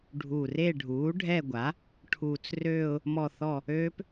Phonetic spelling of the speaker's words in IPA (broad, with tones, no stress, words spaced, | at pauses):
ɖʱuː˨˩re˦˨ ɖʱuː˩˥ɖʱɛ˦˨ɡʷa˩˥ | ʈʰuː˨˩t͡srøː˦˨ʊ̯ | mɔ˦˨θɔ˦˨ | øː˦˥p